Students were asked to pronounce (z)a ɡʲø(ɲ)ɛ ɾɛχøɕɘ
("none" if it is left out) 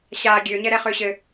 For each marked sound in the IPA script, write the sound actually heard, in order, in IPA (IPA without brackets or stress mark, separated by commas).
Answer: ɕ, ɲ